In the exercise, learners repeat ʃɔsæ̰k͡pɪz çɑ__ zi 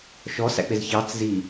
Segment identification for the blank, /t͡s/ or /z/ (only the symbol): t͡s